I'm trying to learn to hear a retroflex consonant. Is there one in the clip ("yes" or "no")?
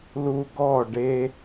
yes